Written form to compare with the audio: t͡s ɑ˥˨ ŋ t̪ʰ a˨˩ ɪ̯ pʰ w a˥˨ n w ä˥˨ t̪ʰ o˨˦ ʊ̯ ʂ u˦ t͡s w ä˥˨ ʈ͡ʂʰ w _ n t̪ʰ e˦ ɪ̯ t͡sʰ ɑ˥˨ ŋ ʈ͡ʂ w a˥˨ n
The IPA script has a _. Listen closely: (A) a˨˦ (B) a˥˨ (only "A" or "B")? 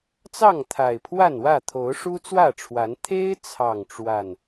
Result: A